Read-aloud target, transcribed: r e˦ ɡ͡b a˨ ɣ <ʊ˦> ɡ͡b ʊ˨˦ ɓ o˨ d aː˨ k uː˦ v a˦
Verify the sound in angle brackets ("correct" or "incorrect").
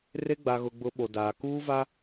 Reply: incorrect